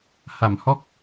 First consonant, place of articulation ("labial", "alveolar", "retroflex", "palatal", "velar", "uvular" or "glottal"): glottal